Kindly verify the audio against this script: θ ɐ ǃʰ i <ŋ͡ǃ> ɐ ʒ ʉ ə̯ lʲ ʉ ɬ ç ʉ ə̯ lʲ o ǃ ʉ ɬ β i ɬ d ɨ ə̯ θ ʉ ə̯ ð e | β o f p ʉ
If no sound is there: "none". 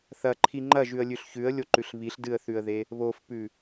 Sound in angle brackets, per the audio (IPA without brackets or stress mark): ŋ͡ǃ